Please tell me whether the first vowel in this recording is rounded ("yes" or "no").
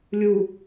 yes